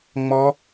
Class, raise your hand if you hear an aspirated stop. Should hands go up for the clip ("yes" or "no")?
no